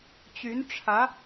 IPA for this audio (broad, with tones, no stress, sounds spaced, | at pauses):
t͡ɕ y˧˥ n ʈ͡ʂʰ ä˧˥